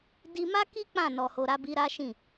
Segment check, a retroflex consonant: absent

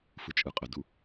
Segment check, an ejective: present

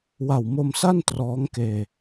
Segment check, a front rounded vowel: absent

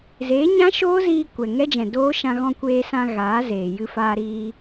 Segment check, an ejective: absent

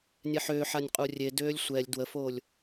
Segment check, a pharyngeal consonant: present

